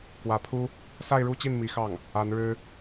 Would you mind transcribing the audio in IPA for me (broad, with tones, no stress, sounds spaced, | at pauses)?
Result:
k w ä˧˥ pʰ u˥ | s a˥˧ ɪ̯ ɻ u˥˧ t͡ɕ i˥˩ n m i˧˥ x ɑ˥˩ ŋ | a˧˥ n ɻ ɻ̩˥